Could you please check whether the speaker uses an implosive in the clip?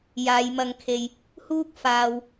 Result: no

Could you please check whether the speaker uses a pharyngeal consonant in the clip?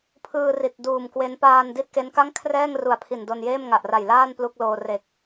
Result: no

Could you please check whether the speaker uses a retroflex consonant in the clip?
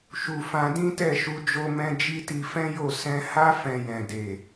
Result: no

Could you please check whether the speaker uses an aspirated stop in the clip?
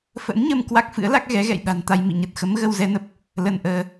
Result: no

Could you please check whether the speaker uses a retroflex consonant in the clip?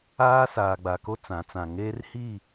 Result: no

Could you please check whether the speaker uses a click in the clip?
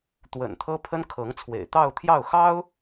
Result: no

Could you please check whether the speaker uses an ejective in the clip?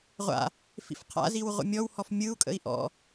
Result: yes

